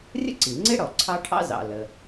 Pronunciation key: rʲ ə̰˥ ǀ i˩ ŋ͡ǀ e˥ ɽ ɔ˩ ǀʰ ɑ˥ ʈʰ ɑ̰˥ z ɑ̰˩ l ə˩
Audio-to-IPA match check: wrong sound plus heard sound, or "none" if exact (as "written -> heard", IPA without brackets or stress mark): none